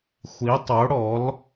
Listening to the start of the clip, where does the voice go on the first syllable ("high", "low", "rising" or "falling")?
rising